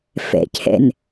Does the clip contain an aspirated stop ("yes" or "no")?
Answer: yes